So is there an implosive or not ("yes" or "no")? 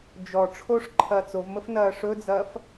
no